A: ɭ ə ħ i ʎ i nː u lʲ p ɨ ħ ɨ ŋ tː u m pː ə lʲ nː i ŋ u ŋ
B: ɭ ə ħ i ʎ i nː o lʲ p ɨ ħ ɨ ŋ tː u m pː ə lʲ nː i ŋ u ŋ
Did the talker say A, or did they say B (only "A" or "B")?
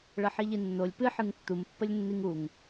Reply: B